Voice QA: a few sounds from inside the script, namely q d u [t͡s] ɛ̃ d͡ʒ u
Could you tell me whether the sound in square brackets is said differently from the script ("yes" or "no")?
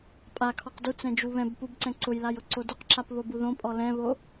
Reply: no